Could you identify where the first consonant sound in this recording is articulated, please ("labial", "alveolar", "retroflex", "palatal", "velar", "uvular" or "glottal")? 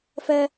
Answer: labial